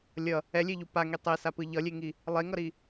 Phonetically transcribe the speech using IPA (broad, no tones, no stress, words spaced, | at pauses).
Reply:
lʲʌ | ɛlʲeʎu paŋi tˤesapɯ ʎʌlʲeŋi | lˠeŋʌɾi